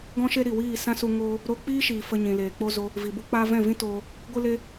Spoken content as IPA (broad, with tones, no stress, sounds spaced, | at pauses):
ɡ ɔ̃˦ ʃ e˦ ɾ i˨ w iː˦˨ s ã˦ s u˧ ŋ oː˦ | ɾ o˧ k͡p iː˦ ʃ iː˨ f ə˧ ɲ ĩ˨ l eː˨ k͡p o˦ z o˦ | v i˨ b u˦ k͡p aː˦ v ɛ̃˦˨ v ĩ˦ t oː˧ | ɡʷ ɨ˦ l e˦